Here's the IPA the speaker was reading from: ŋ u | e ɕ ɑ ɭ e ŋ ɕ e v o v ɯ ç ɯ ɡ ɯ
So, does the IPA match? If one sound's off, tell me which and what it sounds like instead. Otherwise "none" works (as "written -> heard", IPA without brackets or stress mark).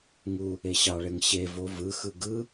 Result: ç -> x